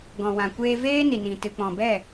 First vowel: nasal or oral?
nasal